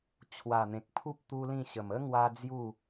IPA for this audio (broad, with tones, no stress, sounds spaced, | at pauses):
t͡ɕʰ w a˨˩ n̪ ẽ˨ k̚ pʰ u˦ p̚ t̪ u˦ l ĩ˥˧ ɕ ə˨˩ m ə˦ ŋ w a˦ d͡z j u˥˧